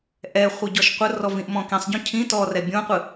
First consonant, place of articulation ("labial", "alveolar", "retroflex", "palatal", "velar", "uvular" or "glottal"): glottal